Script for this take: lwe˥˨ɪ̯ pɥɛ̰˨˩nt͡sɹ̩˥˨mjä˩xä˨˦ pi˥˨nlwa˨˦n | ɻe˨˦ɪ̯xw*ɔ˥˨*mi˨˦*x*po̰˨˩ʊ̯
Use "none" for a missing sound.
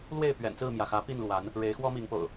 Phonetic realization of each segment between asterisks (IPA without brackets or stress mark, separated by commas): ɔ˦, ŋ